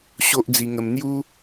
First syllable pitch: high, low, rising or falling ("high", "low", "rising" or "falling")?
high